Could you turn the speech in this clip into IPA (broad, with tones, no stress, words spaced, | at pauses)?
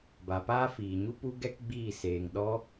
ba˨paː˦fiː˨ɲu˦ pu˦ɡɛ˦k ɡ͡biː˦˨seː˨ŋ ɗɔ˦